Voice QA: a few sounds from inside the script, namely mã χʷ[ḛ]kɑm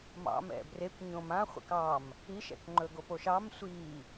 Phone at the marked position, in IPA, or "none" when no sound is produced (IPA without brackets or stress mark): ḛ